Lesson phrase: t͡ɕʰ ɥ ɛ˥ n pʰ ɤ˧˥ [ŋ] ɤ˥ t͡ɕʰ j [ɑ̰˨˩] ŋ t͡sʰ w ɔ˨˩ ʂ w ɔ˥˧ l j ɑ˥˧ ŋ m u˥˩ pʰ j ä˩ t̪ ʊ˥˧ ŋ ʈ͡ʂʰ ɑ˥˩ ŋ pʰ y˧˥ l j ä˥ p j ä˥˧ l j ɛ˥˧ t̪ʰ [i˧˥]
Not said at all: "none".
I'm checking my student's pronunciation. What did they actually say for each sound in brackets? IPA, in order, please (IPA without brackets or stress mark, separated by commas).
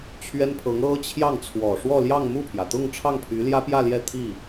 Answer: ŋ, ɑ˥˩, i˥˩